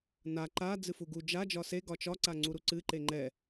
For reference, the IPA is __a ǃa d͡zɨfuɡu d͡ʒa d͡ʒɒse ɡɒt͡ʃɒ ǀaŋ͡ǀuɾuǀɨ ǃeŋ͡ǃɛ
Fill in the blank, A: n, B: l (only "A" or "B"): A